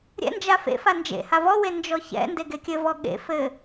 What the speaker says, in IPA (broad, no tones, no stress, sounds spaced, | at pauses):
ɾʲ ɛ̰ n d͡ʒ a f ḛ f a n d͡ʒ ḛ h a v ɔ w e n d͡ʒ ɔ ç ɛ̰ n d e ɡ e kʲ ɘ v ɔ ɠ ḛ f ɘ